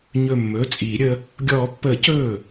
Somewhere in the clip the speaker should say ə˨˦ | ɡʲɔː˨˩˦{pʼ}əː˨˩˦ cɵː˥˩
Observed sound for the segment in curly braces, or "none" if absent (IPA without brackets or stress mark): pː